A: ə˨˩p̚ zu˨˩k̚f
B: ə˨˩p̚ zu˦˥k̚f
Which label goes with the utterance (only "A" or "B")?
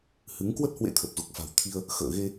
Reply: A